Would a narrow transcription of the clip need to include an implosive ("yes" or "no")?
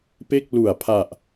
no